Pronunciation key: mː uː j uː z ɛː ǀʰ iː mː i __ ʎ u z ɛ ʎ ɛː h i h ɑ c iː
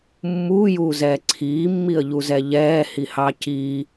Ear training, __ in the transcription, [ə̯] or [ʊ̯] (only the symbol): ə̯